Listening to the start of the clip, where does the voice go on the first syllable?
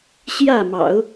falling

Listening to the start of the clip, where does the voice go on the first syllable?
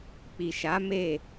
low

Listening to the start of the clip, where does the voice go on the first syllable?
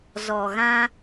low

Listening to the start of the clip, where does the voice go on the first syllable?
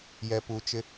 low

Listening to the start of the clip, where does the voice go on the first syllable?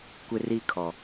high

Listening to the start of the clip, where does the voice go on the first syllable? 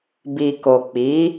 low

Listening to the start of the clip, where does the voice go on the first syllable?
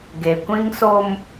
low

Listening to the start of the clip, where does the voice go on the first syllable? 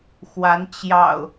rising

